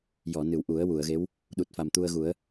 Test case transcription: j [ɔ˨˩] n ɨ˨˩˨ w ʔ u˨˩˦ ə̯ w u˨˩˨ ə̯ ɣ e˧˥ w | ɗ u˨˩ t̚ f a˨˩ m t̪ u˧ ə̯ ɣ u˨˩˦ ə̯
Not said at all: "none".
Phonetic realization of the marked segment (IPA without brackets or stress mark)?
ɔ˨˩˨